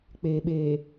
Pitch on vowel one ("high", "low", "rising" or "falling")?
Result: low